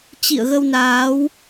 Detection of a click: absent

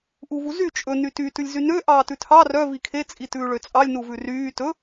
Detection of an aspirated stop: present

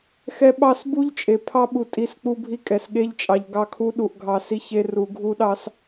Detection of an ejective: present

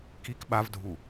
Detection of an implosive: present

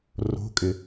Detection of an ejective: present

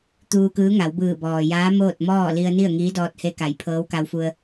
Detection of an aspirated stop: present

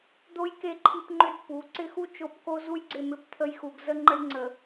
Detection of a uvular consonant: absent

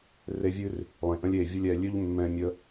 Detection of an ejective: absent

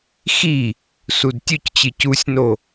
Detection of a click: absent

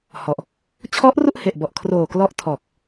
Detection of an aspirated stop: present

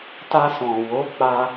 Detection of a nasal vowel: present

